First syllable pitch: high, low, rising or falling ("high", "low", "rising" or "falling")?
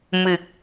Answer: low